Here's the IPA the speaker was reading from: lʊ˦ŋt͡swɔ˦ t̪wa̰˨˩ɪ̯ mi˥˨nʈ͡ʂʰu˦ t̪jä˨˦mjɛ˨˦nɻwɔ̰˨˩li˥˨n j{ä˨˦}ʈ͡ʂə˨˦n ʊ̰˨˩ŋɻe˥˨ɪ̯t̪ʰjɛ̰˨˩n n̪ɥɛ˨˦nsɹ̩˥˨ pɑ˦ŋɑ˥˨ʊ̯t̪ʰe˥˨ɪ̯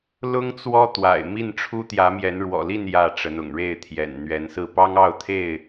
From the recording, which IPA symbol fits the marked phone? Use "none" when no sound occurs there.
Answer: ä˥˨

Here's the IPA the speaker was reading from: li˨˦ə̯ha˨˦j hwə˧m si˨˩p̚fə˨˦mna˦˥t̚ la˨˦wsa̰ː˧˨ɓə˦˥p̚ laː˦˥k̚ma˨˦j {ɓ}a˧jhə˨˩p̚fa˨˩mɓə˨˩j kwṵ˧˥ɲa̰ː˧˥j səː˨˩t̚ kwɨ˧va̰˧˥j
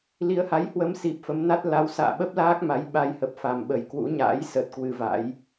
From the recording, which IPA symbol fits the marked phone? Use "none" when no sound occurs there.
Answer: ɓ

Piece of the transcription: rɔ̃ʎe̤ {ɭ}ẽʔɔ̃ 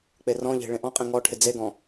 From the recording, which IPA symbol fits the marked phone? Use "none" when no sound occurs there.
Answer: ɭ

